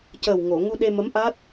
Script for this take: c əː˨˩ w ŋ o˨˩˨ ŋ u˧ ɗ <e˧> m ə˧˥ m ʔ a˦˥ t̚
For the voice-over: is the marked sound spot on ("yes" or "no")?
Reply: yes